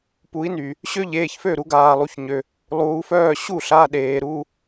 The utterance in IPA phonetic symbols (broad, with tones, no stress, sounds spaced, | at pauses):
p u˨˦ i̯ n y˩ | ɕ ø˥ ʎ eː˩˧˩ ç f ø˥˩ ɾ u˨˦ ɡ aː˩ lˠ u˩˧˩ ç ɲ ø˩ | lˠ uː˨˦ f œː˥˩ ɕ u˥˩ ɬ a˩˧˩ ɗ eː˩ ɾ u˩˧˩